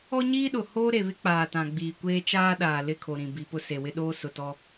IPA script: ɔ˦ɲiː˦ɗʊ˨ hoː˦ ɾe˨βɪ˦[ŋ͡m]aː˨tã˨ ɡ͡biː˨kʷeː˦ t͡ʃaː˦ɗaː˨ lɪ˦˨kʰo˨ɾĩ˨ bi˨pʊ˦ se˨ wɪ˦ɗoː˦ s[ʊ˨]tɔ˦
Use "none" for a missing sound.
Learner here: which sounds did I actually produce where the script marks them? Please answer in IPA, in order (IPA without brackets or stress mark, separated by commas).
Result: k͡p, ʊ˨